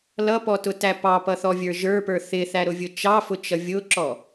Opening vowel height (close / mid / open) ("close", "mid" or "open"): mid